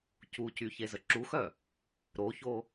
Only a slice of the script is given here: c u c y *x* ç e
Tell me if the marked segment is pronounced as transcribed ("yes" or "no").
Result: no